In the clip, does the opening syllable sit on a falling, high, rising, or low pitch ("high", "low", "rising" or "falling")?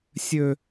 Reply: high